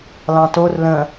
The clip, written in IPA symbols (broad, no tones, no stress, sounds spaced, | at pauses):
l ɑ̃ t o r l ə̃